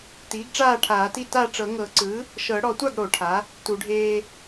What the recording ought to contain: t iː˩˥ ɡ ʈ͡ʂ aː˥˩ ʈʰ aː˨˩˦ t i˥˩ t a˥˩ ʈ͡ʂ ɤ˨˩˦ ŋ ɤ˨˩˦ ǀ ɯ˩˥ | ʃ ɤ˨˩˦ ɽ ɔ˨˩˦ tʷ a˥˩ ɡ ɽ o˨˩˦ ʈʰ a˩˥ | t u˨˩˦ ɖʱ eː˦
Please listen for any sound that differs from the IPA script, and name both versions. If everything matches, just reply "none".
none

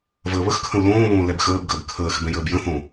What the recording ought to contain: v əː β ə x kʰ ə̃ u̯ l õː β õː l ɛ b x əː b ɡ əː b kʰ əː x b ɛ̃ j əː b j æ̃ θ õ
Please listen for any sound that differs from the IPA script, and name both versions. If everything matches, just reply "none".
æ̃ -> ə̃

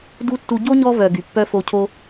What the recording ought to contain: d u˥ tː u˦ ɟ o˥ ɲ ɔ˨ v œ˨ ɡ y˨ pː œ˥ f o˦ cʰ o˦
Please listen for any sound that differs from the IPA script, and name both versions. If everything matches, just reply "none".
ɔ˨ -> ɔ˦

